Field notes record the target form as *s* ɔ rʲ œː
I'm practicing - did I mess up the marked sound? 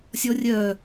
yes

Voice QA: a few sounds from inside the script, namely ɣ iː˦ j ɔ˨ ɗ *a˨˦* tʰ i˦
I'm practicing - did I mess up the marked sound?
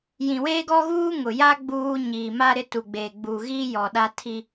yes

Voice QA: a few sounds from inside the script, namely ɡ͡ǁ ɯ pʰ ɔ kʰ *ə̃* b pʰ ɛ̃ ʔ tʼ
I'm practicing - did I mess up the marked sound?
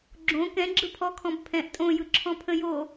yes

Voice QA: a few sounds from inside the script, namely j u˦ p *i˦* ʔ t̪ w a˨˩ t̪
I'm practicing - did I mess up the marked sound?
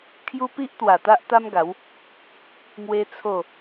no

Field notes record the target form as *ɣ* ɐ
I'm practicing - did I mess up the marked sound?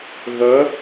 no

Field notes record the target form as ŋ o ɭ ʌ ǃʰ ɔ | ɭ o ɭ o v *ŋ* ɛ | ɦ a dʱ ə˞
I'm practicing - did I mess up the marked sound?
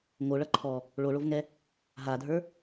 no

